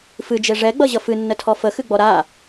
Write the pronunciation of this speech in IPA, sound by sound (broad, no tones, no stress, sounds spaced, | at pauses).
f ɨ d͡ʒ e ʐ ɛ ɡ͡b ʌ ʑ ʌ f ɨ nː ə tʰ ɔ f ə x ɨ ɡ͡b ɔ ɾ a